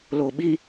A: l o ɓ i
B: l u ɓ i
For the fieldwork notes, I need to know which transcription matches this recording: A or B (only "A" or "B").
A